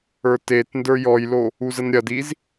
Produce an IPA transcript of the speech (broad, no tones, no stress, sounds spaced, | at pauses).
ə˞ t e t n d ə˞ j ɔ j l o | u z ə n ɾʲ ɐ d i z